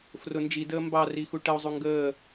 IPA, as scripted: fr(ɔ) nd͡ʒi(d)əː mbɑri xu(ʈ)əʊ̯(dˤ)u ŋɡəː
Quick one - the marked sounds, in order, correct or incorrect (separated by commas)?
incorrect, correct, correct, incorrect